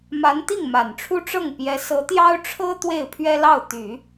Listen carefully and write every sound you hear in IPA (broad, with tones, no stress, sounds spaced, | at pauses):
m a˧˥ n t̪ i˥˩ ŋ m a˨˩ n ʈ͡ʂʰ u˥ ʈ͡ʂ ɤ˥˩ ŋ p j ɛ˧˥ s ɤ˧˥ t̪ j ɑ˥ ʊ̯ ʈ͡ʂʰ ɤ˥ t̪ w e˥˩ ɪ̯ pʰ ɥ ɛ˥ l ɑ˥˩ ʊ̯ t̪ y˨˩˦